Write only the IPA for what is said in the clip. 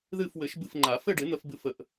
ð ɨ˦˨ f w ɘ˨˩˦ ʃ b ɨ˦˨ f ŋ͡ǃ a˨˩˦ f ɘ˦˨ ɖ ɪ˨˩˦ n̪ ə˧˥ f b ɨ˦˨ f ə˨˩˦ ʔ

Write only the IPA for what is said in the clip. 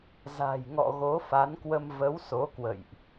z a̤˨˩ j ŋ ɔ̰˧˨ ɣ o˨˦ f a˨˦ n k w ə˧ m v ə˨˦ w s o˨˦ k w ə̰˧˨ j ʔ

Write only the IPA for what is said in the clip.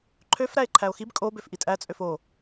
ǃʰ ø f ɾ æ e̯ ǃʰ æ o̯ x i b kʼ o b ø f ʔ i tʼ æ t͡sʼ ø f o

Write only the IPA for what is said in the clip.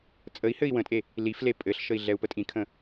t͡sʼ ə i̯ h ɘ i̯ w ə̃ tʼ e | l i f l e pʼ ɘ ɬ ʃ ə i̯ ɮ ɛ u̯ p ə tʼ ĩ kʰ ə̃

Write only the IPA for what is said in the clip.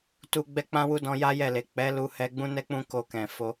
t u˧ ɡ͡b ɛ˧ k͡p ã˧ w u˧ d ɔ̃˧ j a˦ j ɛ˦˨ l e˨ k͡p ɛ˨˦ l u˧ h ɛ˧ ɡ͡b ũ˦ n ɛ˦ k͡p ũ˦ k o˧ k ɛ̃˨ f o˧

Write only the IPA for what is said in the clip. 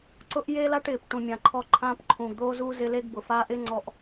ǀ ʊ˦ ʔ j e˦ l a˦ ʈ ɪː˨ p ʈ ũ˨ mʲ ã˨ ǃʰ ɔ˧ ǃʰ ãː˦ p ǃʰ ũː˨ ɡ d̪ oː˦ z uː˦ z ɪ˦ l e˦ ɡ b ʊ˨ f a˧ ʔ ɪ˦ ŋ͡ǀ ɔ˧ ʔ

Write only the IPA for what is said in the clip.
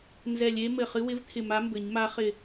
n z ɛ˧˩ lʲ e˧˥ m ɘ˧˩ χ ɨ˧˥ w ɪ˧˥ v t̪ʰ ɪ˧˩ m a˧˥ m b ɘ˨˩˦ ɲ m a˧˥ χ ɪ˧˩

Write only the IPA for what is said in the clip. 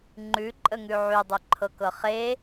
ŋ͡ǃ ʉ ǃʼ ə ŋ ʉ ʕ y dˤ y ǃʰ ɤ k ɤ χ e

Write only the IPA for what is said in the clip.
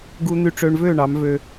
ɡ u˧ n̪ y˧ ʈ͡ʂ ø˧ ɳ v ø˥˩ ɳ ɑ˩˥ m v ø˧

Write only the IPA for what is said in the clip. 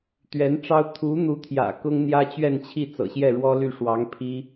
t̪ ɥ ɛ˧˥ n ʈ͡ʂ ɑ˥ ʊ̯ t̪ʰ u˧˥ n̪ u˧˥ t̪ʰ j ä̰˨˩ k ʊ˥ ŋ n̪ j ä˥ t͡ɕ ɥ ɛ˥˧ n t͡ɕʰ i˥˩ t͡s ɤ̰˨˩ ɕ j ɛ˥˩ ɻ w ɔ˥ l y˥˩ ʂ w ɑ˧˥ ŋ pʰ i˥

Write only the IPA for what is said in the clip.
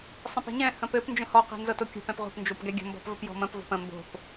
sˤ ɛ̃ p ɛ̤ ɲ ɛ̃ h ə̃ p ɘ p n d͡ʒ ə̃ h ɔ q ɛ̤ n z ɤ t o kʲ o̤ p ɛ̃ p ʁʷ ɛ̤ p n d͡ʒ o p ɡ ɛ ɡʲ ə̤ m b ɔ̤ p v ə p j ɔ̤ m ə̃ p v ɔ̤ p ə̃ m b o̤ p

